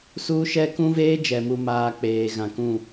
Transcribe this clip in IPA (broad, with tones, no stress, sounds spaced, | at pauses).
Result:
s uː˦ ʃ ɛ˦ k ũ˦ v eː˦ d͡ʒ ɛ˨ m u˨ m aː˨ k͡p eː˨ ɣ ã˨ k ũ˦˨